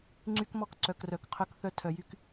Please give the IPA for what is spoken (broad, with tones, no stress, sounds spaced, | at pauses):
ŋ͡ǀ y˦ k m ɔ˦ k ǀ œ˨ k r œ˨ k qʰ œ˦ k θ œ˦ tʰ œ˨ j y˦ k